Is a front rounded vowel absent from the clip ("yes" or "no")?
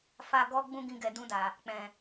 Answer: yes